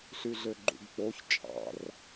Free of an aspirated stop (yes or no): yes